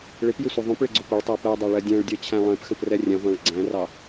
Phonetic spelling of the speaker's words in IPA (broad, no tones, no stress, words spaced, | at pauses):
ɭɪpjɪsʷʌ ðˤũpɭɪɡ͡ǀʊ pʊɭtˤɜ pɜdˤæɭɜ dʲæ̃ɭdʲɜt͡ɕʰæ̃ lˠɛ̃pxə̃prɛ rʲɛ̃ʁʷæ̃ɭ ɡ͡ǀæ̃rɑ